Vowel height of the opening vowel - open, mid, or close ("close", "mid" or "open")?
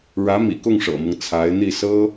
open